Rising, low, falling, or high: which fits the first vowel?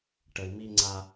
low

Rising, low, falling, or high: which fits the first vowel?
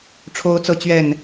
high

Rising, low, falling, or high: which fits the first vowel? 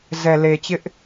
low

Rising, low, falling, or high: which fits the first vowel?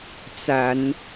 low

